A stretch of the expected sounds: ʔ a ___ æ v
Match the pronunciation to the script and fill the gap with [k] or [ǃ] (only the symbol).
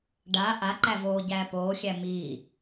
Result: ǃ